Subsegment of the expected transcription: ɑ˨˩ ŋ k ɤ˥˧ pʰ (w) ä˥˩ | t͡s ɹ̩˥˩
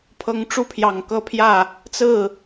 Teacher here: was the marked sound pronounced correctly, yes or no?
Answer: no